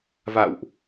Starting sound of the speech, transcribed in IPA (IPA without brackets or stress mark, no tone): v